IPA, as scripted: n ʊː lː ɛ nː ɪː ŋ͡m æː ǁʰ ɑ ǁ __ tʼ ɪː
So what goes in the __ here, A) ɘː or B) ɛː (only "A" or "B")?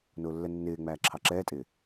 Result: B